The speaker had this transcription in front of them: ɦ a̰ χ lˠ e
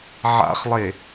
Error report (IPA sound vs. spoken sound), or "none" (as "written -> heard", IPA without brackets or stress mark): ɦ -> ʕ